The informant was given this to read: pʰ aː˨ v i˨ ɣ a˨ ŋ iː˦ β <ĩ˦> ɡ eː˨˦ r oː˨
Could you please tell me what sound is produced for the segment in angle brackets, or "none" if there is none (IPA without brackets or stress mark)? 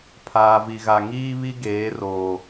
i˦